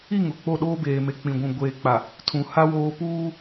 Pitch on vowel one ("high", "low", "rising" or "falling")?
falling